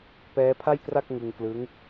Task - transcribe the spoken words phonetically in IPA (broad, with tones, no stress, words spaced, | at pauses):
pɛː˦˥pʰa˥˩jkra˥˩k̚ ŋɯ˧ŋklɯ˦˥ŋ